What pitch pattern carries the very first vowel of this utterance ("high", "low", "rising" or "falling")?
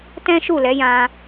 high